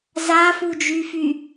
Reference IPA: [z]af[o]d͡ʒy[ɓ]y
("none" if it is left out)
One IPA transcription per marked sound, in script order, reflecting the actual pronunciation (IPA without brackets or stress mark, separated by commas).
z, u, f